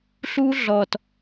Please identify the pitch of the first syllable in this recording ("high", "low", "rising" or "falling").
high